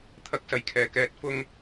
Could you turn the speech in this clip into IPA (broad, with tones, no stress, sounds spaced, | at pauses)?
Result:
t̪ʰ ɐ˨˥ k̚ s ɐ˨˩ j kʰ ɛː˨˩ k ɛː˧ t̚ f ʊ˥ ŋ